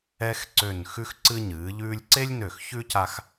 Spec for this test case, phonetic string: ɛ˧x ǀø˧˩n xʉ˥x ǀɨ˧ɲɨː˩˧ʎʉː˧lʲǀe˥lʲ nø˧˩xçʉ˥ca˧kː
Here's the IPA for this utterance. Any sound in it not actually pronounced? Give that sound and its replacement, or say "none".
kː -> x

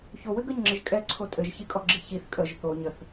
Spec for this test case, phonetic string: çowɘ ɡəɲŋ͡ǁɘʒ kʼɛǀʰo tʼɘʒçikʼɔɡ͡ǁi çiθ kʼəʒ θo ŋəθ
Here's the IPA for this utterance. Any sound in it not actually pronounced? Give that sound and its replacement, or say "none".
ŋ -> ɲ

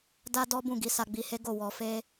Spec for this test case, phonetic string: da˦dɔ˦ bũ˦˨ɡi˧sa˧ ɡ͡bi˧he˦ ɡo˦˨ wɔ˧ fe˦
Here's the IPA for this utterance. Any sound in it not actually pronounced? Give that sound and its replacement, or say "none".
none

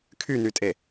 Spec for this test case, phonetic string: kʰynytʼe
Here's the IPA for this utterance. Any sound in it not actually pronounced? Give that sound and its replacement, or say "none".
none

